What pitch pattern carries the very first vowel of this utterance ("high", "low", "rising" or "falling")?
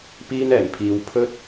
high